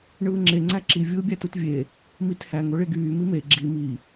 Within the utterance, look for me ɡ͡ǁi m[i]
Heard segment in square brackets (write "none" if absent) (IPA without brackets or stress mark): i